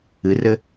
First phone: ɨ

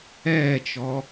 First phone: ɛː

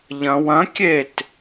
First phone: ʎ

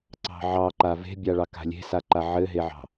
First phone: ǀ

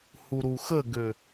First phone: h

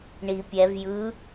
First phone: ɳ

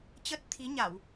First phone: t͡ɕ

